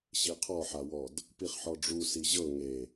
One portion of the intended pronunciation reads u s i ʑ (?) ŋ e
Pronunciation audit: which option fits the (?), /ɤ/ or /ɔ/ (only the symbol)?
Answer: ɤ